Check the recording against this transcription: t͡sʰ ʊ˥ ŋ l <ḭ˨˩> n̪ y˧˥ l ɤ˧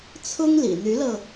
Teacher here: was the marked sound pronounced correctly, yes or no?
yes